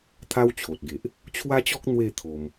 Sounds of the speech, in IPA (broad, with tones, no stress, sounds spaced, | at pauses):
t̪ʰ a˦ w t͡ɕʰ o˨ t̚ ɡ e˨ ʔ | t͡ɕʰ w a˦ t͡ɕ ɔ˦ k̚ n̪ w e˥˧ t̪ʰ o˧ m